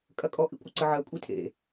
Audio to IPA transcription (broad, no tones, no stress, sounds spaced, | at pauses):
kʼ ɐ kʼ ɔ ʔ ḭ kʷʼ ɐ ǀ ə ʕ ɜ kʷʼ i tʰ ḛ